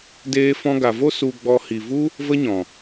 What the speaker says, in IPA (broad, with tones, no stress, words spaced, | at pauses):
deː˧fɔ̃˧ɡa˨vo˦ su˧ɡ͡bɔ˧ hi˨vu˦ | və˦ɲɔ̃˨